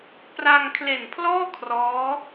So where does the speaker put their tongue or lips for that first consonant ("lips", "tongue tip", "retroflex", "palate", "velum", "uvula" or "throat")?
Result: lips